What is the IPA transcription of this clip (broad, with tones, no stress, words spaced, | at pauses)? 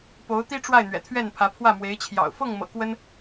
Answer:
po˧˥ʊ̯t̪i˥ʈ͡ʂwa˥˩ɪ̯ n̪ɥɛ̰˨˩t̪ʰɥɛ˥˩npʰä˧˥ pʰwä˥˩mwe˧˥ɪ̯t͡ɕʰjɑ̰˨˩ʊ̯ fɤ˥˩ŋmɤ̰˨˩ kwə˥n